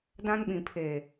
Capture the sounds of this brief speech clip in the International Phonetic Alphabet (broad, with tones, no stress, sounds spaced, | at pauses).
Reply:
d ã˦ n ɓ ĩ˨ pʰ eː˨